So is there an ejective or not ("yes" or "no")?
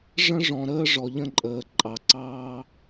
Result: yes